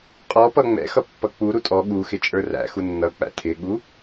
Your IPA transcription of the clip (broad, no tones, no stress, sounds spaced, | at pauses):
qʼ ɔ p ʌ ŋ͡m ɛ̰ x ʌ pː ʌ k͡p u ɾ u tʼ ɔ ɠ u x ɪ t͡ʃʼ ə˞ r æ̰ x u nː ʌ k͡p æ̰ tʰ ɪ ɠ u